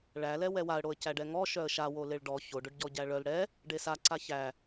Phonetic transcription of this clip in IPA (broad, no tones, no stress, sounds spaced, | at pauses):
ɭ æ l ɛ w ɛ w a ə̯ ɽ o ə̯ c æ ɖ ɛ ŋ ɔ ʃ œ ə̯ ʃ a w o l e ɭ ɖ ɔ ç o ɖ ʊ ɖ ɟ ɔ ɟ æ ɭ œ l ɽ ɛ | ɖ e s a ǀ a ç æ